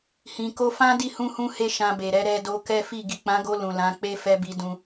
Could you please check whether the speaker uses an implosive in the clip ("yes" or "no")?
no